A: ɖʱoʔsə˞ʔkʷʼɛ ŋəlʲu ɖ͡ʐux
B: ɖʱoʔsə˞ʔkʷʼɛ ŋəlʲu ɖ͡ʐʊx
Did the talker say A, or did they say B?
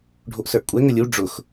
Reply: B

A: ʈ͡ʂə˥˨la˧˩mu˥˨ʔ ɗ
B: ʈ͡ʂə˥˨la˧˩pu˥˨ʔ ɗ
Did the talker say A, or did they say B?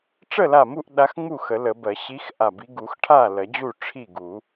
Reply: A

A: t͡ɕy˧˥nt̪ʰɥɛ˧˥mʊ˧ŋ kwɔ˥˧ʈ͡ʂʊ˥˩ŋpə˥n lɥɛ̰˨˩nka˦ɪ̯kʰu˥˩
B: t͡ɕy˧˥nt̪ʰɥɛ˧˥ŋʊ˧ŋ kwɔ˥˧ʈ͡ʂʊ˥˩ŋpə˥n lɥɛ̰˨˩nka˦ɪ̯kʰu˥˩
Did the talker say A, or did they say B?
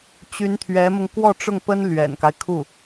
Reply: A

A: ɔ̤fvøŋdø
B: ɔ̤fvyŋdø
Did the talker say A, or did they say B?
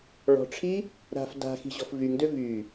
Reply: B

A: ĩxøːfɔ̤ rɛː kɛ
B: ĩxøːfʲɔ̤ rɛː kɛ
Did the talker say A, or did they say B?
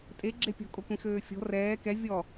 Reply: B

